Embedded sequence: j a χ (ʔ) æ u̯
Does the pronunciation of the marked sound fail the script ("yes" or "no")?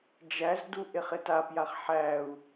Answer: yes